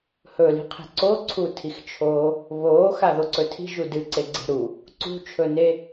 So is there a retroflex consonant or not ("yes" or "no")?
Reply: no